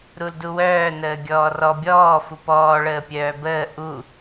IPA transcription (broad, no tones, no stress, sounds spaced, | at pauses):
ɾ u l d u w œː n əː ɡʲ ɔː r ɔ bʲ ɔː f u p ɔː ɭ əː pʲ œː b əː ʔ u